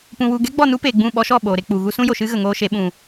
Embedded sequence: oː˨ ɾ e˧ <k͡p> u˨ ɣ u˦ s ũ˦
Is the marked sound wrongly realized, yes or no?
no